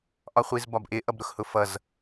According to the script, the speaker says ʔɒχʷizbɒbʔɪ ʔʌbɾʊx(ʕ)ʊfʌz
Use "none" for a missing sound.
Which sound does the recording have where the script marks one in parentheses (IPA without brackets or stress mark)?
h